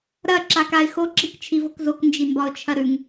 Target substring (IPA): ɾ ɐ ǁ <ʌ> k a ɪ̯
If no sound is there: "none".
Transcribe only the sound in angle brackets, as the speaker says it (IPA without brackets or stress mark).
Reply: a